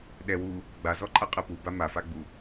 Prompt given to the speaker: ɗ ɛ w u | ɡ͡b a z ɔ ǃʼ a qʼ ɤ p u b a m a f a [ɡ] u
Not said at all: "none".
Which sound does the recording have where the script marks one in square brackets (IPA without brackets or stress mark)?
ɡ͡b